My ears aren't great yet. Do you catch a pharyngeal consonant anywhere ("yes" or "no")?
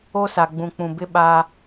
no